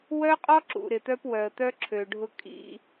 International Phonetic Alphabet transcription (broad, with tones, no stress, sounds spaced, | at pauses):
w œ˦ qʼ ɔ˦ ǁ ṵ˨ ɾ ɪ˨ t̪ œ˦ p w œ˨ ə̯ t̪ œ˦ ǁʰ ø˨ ɖʱ ʊ˦ kʼ ḭ˦